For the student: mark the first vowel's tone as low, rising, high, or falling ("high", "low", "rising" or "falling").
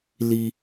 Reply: high